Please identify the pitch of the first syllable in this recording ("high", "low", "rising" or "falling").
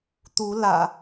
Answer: rising